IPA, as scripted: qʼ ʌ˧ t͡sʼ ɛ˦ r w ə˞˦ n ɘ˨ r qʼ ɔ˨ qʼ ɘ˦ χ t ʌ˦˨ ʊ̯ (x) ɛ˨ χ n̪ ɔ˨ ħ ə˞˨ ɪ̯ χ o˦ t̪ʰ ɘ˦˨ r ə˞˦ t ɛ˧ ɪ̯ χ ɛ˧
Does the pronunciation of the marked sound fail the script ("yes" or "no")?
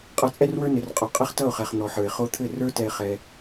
yes